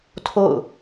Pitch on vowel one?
falling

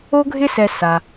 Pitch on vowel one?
high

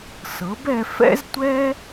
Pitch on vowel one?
rising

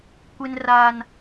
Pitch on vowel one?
high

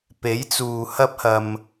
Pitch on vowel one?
rising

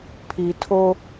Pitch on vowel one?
low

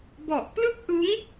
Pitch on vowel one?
low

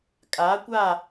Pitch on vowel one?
rising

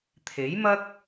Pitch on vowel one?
rising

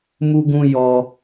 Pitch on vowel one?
high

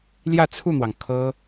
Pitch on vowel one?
falling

